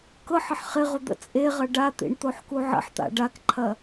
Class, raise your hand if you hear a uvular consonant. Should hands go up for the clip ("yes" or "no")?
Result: yes